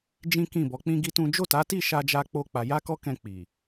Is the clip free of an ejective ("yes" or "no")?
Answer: yes